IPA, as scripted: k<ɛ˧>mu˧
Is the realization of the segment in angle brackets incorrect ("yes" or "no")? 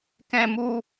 yes